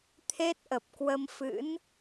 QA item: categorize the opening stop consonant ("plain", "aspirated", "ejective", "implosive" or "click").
aspirated